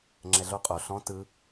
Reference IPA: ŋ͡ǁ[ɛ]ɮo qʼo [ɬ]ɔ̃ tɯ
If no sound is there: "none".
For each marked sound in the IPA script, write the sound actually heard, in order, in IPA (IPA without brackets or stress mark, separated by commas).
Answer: ɛ, ɬ